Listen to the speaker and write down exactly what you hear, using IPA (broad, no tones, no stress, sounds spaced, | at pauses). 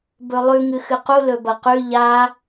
b ɵ lˠ ʉ ŋ ɨ x ɨ q u l ɵ b ɐ q ʉ ʎ a